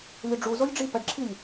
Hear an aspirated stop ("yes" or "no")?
yes